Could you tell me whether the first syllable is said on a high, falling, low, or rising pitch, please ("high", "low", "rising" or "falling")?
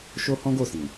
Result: high